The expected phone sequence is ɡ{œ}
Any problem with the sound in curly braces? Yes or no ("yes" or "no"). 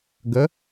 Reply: yes